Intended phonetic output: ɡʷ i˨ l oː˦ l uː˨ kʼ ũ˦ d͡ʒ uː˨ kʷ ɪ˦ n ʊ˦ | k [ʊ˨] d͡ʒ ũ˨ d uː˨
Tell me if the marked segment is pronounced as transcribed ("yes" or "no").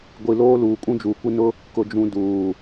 yes